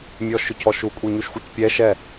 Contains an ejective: yes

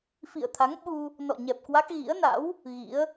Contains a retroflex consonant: no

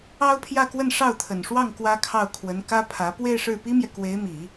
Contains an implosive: no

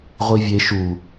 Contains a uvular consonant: yes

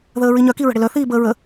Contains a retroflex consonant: yes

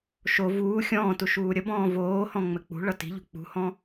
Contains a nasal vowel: yes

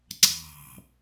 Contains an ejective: no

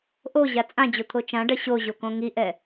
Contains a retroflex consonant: yes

